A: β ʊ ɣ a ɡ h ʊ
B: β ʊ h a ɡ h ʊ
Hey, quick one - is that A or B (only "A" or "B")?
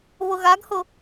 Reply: A